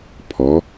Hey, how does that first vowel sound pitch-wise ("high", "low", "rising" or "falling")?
rising